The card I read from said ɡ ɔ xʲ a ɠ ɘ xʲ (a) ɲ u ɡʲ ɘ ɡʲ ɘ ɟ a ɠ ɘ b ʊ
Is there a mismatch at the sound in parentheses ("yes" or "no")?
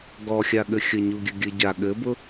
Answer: yes